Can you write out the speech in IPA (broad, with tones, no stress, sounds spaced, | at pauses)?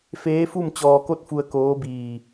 f eː˧˥ f u˥˨ m t͡ɕ ɔː˧ k o˥˨ t̚ f u˧ ə̯ k oː˧˥ b iː˧˩